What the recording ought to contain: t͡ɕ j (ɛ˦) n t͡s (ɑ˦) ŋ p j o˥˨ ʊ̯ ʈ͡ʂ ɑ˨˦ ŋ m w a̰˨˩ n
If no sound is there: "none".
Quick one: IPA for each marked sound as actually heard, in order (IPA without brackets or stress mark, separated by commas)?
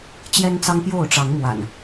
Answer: ɛ˦, ɑ˦